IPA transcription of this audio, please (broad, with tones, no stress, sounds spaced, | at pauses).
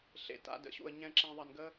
ɬ ḛ˧ t a̰˦ d ə̰˨˦ ɕ ṵ˧ ə̯ ɲ ɛ̃˧ ǁ ɛ̃˧ ðˤ ɐ˧ n ɡ ə˦